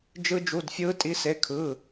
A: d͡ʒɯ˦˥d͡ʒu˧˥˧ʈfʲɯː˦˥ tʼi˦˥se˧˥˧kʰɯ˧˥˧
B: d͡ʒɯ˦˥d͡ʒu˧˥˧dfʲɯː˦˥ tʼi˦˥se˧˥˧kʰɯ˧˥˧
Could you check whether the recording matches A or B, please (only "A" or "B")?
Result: B